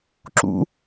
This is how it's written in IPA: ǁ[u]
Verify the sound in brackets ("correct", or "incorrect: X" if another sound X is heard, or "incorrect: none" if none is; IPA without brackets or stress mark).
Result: incorrect: ṵ